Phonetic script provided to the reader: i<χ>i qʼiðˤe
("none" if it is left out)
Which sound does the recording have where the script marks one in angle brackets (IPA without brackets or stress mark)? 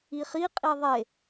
χ